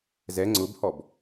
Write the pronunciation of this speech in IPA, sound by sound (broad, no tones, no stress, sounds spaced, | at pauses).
z ɛ ŋ͡ǀ ʊ b h ɔ b